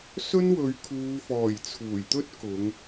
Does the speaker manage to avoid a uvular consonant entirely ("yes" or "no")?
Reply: yes